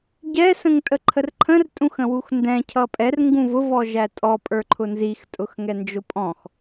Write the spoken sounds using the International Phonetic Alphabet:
ɟ ɛ s ə̃ ŋ tʼ ə ǃʰ ə r ǃʰ ə̃ r tʼ ũ x ə̃ w u x n d ɛ̃ cʰ ʌ pʼ ɛ r ŋ ɡ ũ v ʊ v ɔ ʒ æ tʼ ɔ pʼ ə˞ ǃʰ ʊ n z i x tʼ ʊ x ŋ ɛ n d͡ʒ ʊ pʼ ɔ̃ x

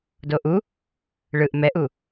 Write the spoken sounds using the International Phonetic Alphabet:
d o ʔ u | ɭ ɯ ʔ m ɛ ʔ u

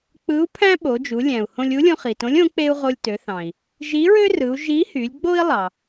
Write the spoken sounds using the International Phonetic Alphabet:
k͡p ɯ˧˥ u̯ pʰ æ̃˥ ɓ o˩˧ d͡ʒ u˩˧ lʲ æ̃˩ u̯ h õ˧ lʲ u˧˥ lʲ õ˧ χ i˩ t õ˧˥ lʲ õ˧˥ k͡p e˥ u̯ ʁ o˧ lʲ t ø˩˧ θ ɑ̃˩ i̯ | ʒ i˧˥ ɹ ø˥ r ɯ˩˧ u̯ ʒ i˧˥ h y˩˧ lʲ ɡ͡b o˥ i̯ lˠ ɑ˩

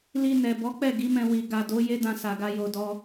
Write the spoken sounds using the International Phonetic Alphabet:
l i˧ n ɛ˨ b ɔ˨˦ k͡p ɛ˦˨ ɡ i˨˦ m ɛ̃˧ w i˨ ɡ a˨ d o˨˦ j e˦ d ã˧ s a˨ ɡ a˧ j o˨ d ɔ˧

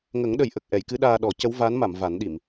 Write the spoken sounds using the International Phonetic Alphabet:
ŋ ə˨˩˦ ŋ ɗ ə˨˩˨ j ʔ ə˨˩ k̚ ʔ ɛ˨˩˨ j k ɨ˧˥ ɗ aː˧ ɗ ɔ˨˩˦ c ə˧˥ w v a˧˥ n m a˨˩˨ m v a˨˩˦ n ɗ i˨˩˨ m

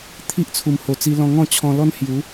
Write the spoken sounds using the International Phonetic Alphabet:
t̪ʰ i˦ ʔ t͡sʰ u˨˩ m h o˨˩ t͡s i˧ l ɔ̃˧ ŋ ɔ̃˥˧ t͡ɕʰ ɔ̃˧ l ɔ˦ n h j u˨˦

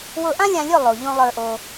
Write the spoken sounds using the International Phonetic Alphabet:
w ʊ˧ ʔ ã˦ lʲ ã˧ lʲ ʊ˦˨ lˠ o˨ ʎ õ˦ lˠ ə˞˧ ʔ o˧

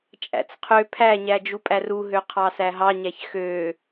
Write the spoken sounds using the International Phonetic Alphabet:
t͡ʃʼ æ̰ t͡s qʰ ø pʰ æ ɲ æ d͡ʒ u pʼ æ r u ɦ ø qʰ ɑ s æ ɦ ɑ ɲ æ ç x ø

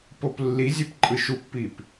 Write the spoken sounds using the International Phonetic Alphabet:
p o p lː i zʲ e p ǃʼ ɯ ʃ u pː i p

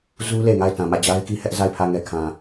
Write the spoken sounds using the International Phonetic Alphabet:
z u˦ l e˨ ŋ a˦˨ ɪ̯ t ã˨ m ä˦˨ d͡ʑ a˦ ɪ̯ k i˦ h ɛ˦ ʔ z a˦˨ ɪ̯ pʰ ä˦˨ ŋ ɛ˦˨ kʰ ã˨

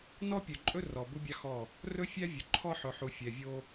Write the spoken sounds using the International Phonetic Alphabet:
n ɔ˦ pʲ ɵ˨ ǃʼ ɵ˦ r ɔ˨ b u˦ bʲ ɑ˦ x ɔ˦˨ | r ɵ˦ fʲ æ˦ vʲ ɵ˨ ǃʰ ɔ˦ ħ ɵ˨ ħ u˨ fʲ ɛ˨ vʲ o˦

